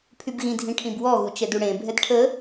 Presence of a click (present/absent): absent